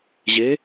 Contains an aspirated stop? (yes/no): no